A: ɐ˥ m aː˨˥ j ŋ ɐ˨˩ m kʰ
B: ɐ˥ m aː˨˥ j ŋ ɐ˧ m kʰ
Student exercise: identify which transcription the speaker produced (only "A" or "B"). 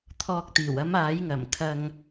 A